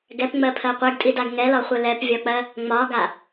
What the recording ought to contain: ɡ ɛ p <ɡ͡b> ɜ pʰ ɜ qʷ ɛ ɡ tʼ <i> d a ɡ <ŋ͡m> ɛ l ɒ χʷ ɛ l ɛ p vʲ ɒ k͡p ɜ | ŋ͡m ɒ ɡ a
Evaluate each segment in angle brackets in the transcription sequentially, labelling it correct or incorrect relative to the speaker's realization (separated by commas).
incorrect, correct, incorrect